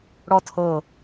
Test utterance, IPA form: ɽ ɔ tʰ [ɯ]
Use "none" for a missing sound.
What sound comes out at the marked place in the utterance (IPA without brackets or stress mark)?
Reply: ɤ